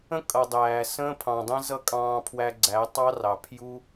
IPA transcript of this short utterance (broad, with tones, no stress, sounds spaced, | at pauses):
ə̃˦ kʼ ʌ˨ dˤ æː˨ s ə̃ː˦ pʰ ɑ̃˨ dˤ ə̃ː˦ z ʌ˦ kʼ ɑ̃ː˧ pʰ w æ˧ ɡ͡ǀ æ˨˦ tˤ ɑ˦ r ɑ˨ pʰ j u˦